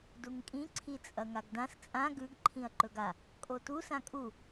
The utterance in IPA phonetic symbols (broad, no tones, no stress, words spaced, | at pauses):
duŋkʼĩ ǀʰit͡sʼɐŋaɡdãs t͡sʼã ɡʉɡǃʰĩɐ̯ ǃɵɡa | kʼotu sãkʼu